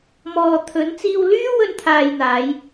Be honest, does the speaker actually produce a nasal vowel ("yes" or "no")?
no